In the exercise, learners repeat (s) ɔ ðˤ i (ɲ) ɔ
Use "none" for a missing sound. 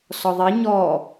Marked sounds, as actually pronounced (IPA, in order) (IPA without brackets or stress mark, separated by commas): s, ɲ